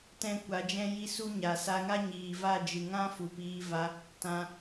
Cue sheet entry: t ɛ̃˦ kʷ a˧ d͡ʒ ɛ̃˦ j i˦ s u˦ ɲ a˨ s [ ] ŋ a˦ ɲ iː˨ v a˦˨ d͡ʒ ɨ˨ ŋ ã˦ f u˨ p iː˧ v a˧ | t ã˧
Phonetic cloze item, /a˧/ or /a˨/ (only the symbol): a˧